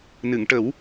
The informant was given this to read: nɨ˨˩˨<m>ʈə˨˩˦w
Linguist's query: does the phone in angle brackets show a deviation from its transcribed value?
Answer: yes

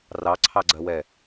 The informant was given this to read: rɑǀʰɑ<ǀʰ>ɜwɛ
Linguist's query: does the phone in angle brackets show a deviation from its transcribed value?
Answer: yes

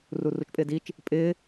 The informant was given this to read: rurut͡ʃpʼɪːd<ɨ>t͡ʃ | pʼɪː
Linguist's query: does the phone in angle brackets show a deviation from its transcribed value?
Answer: yes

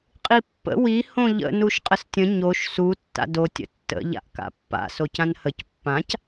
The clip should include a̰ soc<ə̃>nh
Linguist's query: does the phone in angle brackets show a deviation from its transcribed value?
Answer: yes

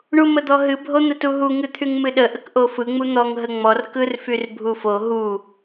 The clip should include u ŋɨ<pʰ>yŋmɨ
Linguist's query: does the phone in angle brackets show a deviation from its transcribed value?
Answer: yes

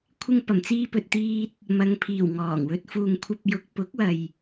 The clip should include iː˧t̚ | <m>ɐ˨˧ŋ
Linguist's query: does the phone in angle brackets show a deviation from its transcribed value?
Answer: no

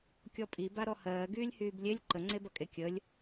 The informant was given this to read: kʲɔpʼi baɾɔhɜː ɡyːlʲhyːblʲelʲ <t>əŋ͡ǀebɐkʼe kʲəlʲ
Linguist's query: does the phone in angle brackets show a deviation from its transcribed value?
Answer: yes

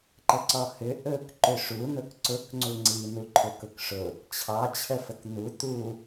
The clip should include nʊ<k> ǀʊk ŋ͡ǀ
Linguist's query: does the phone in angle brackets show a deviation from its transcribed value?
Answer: no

